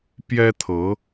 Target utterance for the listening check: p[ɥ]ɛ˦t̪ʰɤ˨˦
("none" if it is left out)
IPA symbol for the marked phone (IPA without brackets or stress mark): j